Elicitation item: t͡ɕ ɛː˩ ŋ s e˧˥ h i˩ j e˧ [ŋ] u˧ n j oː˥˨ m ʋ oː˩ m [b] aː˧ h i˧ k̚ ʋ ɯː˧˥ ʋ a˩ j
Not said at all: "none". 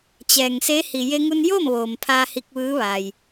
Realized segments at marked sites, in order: ŋ, pʰ

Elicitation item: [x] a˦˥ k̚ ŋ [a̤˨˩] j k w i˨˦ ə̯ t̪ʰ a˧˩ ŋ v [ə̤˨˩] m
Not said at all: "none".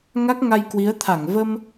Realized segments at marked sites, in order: ŋ, a˧, ə˧

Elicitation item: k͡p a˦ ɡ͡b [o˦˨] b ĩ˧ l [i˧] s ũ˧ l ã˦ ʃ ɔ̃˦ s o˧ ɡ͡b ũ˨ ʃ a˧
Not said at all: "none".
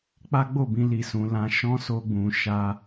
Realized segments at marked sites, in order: o˦˨, i˧

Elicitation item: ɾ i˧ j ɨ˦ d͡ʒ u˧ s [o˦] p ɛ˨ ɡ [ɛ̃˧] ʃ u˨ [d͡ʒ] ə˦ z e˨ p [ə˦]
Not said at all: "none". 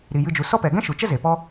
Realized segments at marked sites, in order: ɔ˦, ɛ̃˦, t͡ʃ, ɔ˦

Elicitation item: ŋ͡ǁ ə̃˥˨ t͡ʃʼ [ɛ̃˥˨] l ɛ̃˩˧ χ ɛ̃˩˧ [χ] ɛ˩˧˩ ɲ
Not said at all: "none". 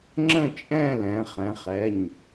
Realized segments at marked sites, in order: ɛ̃˥˨, χ

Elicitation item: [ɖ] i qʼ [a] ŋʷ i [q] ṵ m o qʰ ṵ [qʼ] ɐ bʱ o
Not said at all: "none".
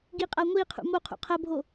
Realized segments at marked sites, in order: ɡ, a, qʰ, qʰ

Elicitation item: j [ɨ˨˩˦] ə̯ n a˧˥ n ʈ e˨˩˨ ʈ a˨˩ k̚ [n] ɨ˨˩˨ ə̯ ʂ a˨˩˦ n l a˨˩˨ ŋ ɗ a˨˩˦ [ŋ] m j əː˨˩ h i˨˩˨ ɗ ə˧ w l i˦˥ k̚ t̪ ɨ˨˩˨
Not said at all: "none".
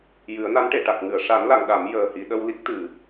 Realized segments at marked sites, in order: ɨ˨˩˦, ŋ, none

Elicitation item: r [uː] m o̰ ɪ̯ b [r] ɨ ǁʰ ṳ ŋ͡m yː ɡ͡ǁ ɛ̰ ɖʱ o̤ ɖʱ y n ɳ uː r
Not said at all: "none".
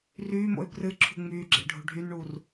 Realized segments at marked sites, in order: yː, r

